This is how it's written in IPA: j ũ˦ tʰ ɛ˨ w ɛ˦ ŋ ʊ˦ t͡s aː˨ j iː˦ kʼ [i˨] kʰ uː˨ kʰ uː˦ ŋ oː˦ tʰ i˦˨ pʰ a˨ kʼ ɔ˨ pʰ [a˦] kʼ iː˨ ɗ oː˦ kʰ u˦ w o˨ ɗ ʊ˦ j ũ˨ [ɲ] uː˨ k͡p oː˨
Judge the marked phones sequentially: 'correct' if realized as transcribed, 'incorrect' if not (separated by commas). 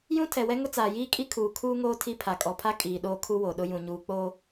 incorrect, correct, correct